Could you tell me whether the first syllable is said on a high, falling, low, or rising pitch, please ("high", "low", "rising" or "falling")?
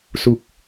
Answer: low